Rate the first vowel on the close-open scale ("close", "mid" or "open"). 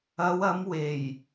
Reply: open